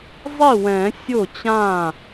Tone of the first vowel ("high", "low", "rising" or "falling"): falling